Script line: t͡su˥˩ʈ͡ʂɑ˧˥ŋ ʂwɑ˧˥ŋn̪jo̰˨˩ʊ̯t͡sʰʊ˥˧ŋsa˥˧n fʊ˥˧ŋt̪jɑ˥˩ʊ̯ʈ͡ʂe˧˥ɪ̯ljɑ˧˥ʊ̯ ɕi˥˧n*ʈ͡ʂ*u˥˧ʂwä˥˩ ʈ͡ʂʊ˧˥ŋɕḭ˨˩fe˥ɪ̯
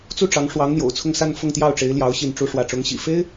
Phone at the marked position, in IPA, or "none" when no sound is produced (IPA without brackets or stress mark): ʈ͡ʂ